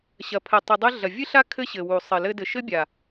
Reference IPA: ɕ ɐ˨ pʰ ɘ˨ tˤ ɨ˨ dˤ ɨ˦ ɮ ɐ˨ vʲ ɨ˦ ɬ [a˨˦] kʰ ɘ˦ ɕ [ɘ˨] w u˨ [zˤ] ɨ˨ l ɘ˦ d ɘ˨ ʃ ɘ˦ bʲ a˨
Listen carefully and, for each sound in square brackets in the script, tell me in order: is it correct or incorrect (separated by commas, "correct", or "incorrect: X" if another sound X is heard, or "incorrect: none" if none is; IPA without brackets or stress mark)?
incorrect: a˦, correct, incorrect: sˤ